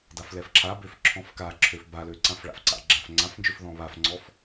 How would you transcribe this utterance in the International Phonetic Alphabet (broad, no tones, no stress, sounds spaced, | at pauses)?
d a f l ɛ f ǁʰ a b ø f ǁʰ ɔ̃ f k a ǁʰ ø f b a l ø ǀ ã f ɭ a̰ f ǀ a̰ ɡ͡ǁ ã f ŋ͡ǀ ã f n d͡ʒ ø f ð ɔ̃ β a f ŋ͡ǀ ɔ f